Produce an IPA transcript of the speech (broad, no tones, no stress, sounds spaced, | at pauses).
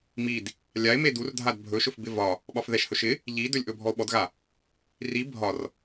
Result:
m i d | lʲ a e̯ m e d u r dʱ a d bʱ ɵ ʃ ɵ f b ɪ v ɒ | ɓ ɒ f ð ɛ ʃ h ɵ ʃ ɪ | ʎ i d ɵ lʲ ʔ ɵ bʱ ɔ o̯ ɓ ɔ d ɣ a | r i bʱ ɒ r